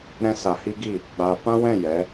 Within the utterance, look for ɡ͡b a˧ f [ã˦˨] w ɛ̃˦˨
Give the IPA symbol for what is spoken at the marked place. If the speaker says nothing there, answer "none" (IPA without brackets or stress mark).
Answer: ã˦